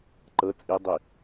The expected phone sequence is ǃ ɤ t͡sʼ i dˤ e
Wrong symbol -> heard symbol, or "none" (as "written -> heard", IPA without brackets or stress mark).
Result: e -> i